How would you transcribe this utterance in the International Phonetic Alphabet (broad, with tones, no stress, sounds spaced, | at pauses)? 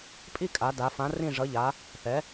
pʼ i˥˧ kʼ a˩˧ d a˩˧ f ã˩˧ r ĩ˧˩ ʐ ʌ˩˧ ʎ a˩˧ | θ ɛ˩˧